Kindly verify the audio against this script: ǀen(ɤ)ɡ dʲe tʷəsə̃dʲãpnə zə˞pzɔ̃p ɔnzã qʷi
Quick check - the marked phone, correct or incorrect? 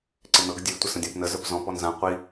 correct